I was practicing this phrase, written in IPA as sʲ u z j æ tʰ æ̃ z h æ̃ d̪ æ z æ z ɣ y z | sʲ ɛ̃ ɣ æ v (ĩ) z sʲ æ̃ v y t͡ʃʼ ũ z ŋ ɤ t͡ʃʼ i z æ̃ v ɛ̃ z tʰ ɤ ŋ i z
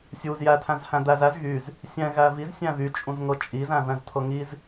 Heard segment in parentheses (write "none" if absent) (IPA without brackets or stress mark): i